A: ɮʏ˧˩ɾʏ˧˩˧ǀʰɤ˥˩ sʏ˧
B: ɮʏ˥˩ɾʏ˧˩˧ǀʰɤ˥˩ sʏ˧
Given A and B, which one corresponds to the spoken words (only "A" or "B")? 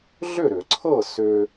B